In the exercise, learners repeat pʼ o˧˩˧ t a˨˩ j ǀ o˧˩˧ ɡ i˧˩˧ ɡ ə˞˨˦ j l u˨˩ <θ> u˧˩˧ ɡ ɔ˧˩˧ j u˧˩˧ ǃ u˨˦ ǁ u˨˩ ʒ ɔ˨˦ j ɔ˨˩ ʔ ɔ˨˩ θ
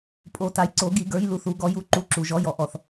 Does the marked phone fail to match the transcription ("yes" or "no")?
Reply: no